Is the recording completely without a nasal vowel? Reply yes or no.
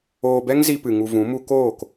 no